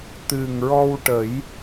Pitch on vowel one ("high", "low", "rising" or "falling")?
low